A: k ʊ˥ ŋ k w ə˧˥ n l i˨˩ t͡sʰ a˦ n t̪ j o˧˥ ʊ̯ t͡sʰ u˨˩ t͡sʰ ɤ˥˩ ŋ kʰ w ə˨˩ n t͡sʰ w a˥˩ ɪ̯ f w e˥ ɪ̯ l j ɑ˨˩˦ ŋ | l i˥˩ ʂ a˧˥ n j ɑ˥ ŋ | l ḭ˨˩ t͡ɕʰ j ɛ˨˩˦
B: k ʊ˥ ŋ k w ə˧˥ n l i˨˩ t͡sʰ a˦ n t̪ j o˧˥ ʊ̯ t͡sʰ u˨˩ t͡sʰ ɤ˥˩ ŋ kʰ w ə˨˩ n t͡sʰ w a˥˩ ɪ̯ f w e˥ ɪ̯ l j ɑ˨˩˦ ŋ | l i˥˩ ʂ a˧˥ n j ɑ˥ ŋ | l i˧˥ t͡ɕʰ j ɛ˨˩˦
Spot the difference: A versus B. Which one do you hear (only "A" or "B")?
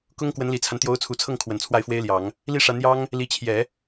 B